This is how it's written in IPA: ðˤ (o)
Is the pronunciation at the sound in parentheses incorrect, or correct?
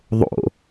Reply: incorrect